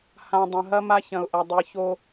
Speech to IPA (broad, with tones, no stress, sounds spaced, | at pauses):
h ã˨ dˤ ɐ̃˨ ɦ ɐ˦ m a˦ ç ɐ̃˨ ʊ̯ ʔ ɐ˨ dˤ i˨ ç o˦